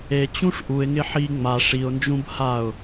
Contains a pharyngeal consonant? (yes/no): yes